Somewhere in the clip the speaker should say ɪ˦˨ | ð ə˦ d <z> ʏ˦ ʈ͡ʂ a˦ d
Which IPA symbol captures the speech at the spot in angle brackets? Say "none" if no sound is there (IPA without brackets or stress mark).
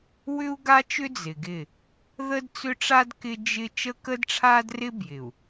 t͡s